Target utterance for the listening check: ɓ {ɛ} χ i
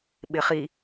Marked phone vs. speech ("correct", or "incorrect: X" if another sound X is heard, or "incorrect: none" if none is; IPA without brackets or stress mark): incorrect: ɪ